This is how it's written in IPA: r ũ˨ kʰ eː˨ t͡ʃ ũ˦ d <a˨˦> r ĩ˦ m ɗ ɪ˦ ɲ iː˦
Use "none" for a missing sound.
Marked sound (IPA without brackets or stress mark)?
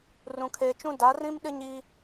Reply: a˨˦